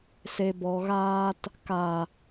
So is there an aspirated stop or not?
no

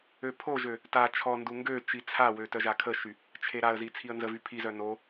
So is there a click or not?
no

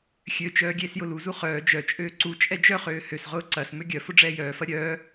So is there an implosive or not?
no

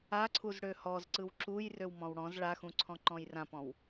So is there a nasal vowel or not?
yes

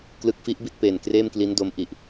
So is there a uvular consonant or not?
no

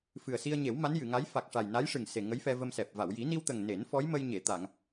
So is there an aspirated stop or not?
no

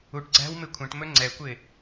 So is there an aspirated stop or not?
yes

